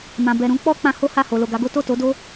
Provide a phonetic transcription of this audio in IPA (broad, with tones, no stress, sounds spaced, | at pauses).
m ã˨ b ɛ˨ ɾ ũ˧ k͡p ɔ˦ k͡p ã˧ h o˦ h a˦˨ h o˨ l o˨ ɡ a˨˦ ɡ o˦ t o˦˨ t o˨˦ d o˦